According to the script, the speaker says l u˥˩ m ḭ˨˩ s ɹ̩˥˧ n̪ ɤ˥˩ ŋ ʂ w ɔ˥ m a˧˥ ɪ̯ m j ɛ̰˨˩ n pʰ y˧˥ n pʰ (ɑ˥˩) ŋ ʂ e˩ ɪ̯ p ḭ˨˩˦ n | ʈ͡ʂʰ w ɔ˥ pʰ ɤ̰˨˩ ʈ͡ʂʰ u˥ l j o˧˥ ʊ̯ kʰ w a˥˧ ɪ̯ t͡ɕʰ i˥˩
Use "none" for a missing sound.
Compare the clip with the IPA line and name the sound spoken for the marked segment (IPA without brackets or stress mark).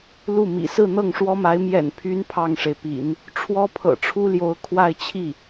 ɑ˥˩